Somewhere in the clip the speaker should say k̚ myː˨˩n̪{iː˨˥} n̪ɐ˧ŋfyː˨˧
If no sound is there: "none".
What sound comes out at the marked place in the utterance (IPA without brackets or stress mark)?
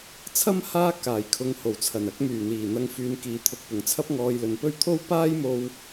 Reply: iː˨˩